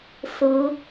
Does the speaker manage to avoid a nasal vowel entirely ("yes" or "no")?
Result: yes